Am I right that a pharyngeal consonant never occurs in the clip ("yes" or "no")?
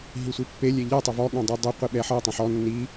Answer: no